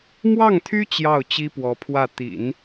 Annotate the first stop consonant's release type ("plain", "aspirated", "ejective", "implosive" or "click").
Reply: aspirated